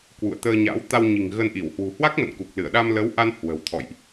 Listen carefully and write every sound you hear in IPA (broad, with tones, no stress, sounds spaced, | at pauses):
k w ṵ˧˨ ə̯ t̪ əː˧ ɲ a̰˧˥ w t̪ a˧ w ɲ i̤˨˩ ŋ ɣ ə˧ n ʔ i˧˩ w h w ṳ˨˩ h w a˦˥ k̚ m ə̰˧˨ n k u˨˩ k̚ l ɨ˧˩ ə̯ ɗ a˧ m l ə˨˦ w ʔ a˧ n h w ə̤˨˩ w t̪ʰ ɔ̰˧˨ j ʔ